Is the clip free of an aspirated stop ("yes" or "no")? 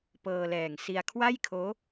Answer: no